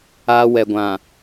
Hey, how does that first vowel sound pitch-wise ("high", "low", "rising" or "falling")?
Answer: high